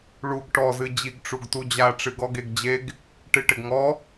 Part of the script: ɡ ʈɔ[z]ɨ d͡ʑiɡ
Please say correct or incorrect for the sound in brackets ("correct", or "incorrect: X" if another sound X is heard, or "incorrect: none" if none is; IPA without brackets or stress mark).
correct